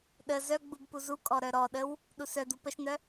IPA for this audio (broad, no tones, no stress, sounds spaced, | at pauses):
ɗ ə z œ ɡ͡b u b p u z u kʼ ɔ ɾ œ ɾ ɔ ɗ ə w | ɗ u s œ d̪ u p ə ʃ n̪ œ